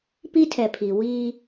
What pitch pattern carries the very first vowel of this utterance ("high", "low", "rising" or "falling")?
high